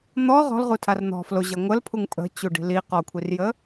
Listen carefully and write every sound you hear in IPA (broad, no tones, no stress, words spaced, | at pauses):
n̪ɔ ʁɔ̤lʁutʰar n̪ɔ̤ floʑʌ ŋʷəlpʰuŋ pʼə̤t͡ɕuɖi̤ li qɔkʷʰirjə